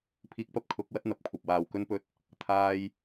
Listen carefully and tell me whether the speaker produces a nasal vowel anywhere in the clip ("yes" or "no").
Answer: no